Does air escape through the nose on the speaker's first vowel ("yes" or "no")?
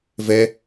no